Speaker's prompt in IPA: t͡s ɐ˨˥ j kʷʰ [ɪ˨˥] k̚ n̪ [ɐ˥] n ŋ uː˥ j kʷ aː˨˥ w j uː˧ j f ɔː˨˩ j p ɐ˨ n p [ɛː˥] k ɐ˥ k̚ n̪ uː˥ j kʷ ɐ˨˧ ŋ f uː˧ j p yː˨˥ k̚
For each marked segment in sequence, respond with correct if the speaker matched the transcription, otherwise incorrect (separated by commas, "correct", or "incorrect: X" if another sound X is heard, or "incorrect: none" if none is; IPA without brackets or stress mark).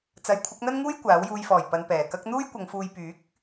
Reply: correct, correct, incorrect: ɛː˨˩